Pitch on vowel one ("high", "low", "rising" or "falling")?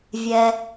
low